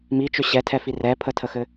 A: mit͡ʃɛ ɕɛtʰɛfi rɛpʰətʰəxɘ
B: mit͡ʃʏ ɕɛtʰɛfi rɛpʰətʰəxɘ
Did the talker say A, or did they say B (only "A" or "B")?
B